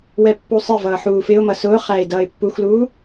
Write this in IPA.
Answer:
w ɛ pː u sˤ ɪ v ʌː ħ uː f ɪ ʊ̯ m ʌ s ʊː χ æ ɪ̯ d ʌː ɪ̯ pː u x l uː

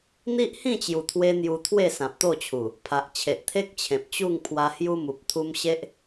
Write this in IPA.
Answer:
n̪ i˦ ʔ h ĩ˥˧ t͡ɕ j u˨˩ t̪ʰ w e˧ n̪ j u˧ t̪ʰ w e˥˧ s ã˨ p̚ t̪ o˥˧ t͡ɕʰ u˨˩ | pʰ a˨ ʔ t͡ɕʰ e˨ ʔ t̪ʰ e˦ k̚ t͡ɕʰ ẽ˨ p̚ t͡ɕ u˥˧ ŋ pʰ w a˧ h j u˦ m u˨ p̚ t̪ʰ u˧ m ɕ e˦ ʔ

